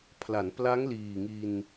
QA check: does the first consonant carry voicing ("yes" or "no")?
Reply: no